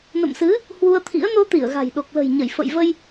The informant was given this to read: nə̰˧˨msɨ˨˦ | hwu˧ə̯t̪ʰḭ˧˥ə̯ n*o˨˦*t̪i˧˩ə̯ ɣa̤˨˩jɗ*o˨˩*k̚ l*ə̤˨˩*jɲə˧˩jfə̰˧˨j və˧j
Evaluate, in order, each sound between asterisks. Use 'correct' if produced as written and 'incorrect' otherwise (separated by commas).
incorrect, correct, correct